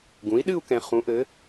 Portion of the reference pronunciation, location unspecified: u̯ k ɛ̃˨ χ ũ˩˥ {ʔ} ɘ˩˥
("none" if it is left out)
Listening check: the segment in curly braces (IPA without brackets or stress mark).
ʔ